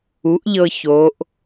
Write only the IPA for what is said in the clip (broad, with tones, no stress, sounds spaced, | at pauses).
u˩˥ ʔ ʎ ɤ˧ ç oː˩˧ ʔ